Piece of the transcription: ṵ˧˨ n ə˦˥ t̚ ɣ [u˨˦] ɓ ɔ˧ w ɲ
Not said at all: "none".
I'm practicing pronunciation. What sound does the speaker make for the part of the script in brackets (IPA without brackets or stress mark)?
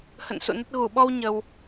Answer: u˧˩